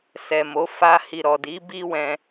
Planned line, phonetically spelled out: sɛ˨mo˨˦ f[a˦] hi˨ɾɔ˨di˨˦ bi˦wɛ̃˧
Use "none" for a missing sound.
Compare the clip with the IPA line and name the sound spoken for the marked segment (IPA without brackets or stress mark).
a˧